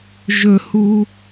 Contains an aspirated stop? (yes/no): no